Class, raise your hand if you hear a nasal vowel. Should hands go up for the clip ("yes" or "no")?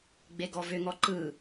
no